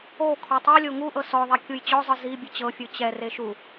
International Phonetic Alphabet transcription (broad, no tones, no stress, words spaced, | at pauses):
o kʰɔtˤolʲo ŋuʔɤ sɔðˤɛ kʲujt͡ɕɔzˤɯ zi bʲɯt͡ɕɤfʲɯ t͡ɕɛre ʃu